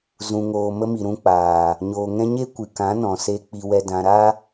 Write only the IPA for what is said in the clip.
zũ˨ŋoː˨mə˧mi˨ ɾũ˧k͡paː˨ | ɲoː˨ŋɛ̃˧ɲe˦ kʷɨ˨kã˨˦nɔ̃˨se˧ k͡pi˧wɛ˧dã˧ ɾa˦

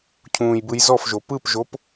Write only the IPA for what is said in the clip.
cʰũːjbɯjzɔfʒo pɯpʒop

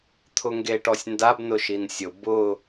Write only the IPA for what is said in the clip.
t̪ʰʊŋɡeʈɔsʲndab nʊʃinsʲʊ bʊ

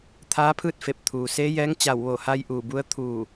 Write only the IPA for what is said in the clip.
t̪ʰaː˧˥ pʰɯː˥˨t̚fe˧˩p̚ t̪ʰuː˩seː˧˥jɛː˧˥ŋ t͡ɕa˧˩wʋo˧˩ha˧j ʔuː˧˩bu˧˥ə̯ t̪ʰuː˧˩

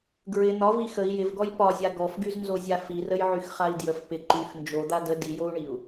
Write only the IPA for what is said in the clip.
ɡɹɪ n̪ɒvi xəi̯ jɪvɡɔj pɒzʲa ɡɔfɡyznzozʲa firəjʕyxχai̯ djəf pɪ ǃyx nd͡ʒod̪a də dijou̯ɳiu̯

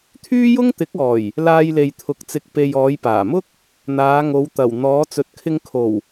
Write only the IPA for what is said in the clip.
t̪ʰyː˥jʊ˥ŋt̪ɪ˨˥k̚ɔː˨˩j | laː˧jle˨jt̪ʰʊ˨˥k̚t͡sɪ˨k̚ pe˨jɔː˨˧jpaː˨˩mʊ˥k̚ | n̪aː˨˧ŋo˨˧w t̪ɐ˨˩w n̪ɔː˨˧t͡sɵ˨t̚kʰɪ˧ŋ kʰo˨˩w

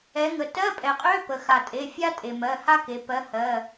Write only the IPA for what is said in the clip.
ɛ˩˧ŋə˩ tɜ˧˥˧pʼɛ˩qʼø˧˥˧ pə˩xa˩tʼe˩˧˩fʲa˥ tʼe˩mɜ˩˧˩ha˥ke˩˧ pɜ˨˥hɜ˩˧˩

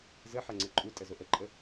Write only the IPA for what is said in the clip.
zəħɐŋ͡ǀə ǃʼutʼəzo ʔəǃʼə

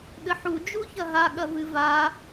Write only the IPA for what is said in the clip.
ɠɘħu d͡ʒuçɐɦa ɠɐvɨva

